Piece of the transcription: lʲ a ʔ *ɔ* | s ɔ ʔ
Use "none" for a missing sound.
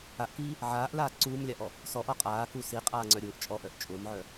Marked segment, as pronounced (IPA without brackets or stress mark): ɔ